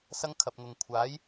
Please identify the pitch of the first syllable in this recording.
high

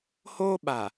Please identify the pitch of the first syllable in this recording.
high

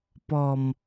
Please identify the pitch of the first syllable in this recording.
low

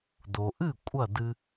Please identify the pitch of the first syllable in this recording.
low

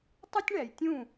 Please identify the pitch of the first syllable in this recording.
high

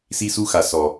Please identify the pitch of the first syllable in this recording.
high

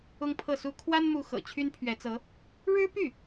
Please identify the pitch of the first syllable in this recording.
high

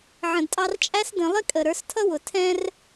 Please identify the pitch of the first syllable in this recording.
low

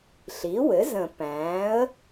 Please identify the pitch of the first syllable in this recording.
rising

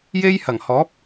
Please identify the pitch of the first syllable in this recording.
high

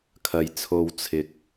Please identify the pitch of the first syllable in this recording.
low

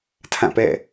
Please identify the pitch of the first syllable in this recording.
falling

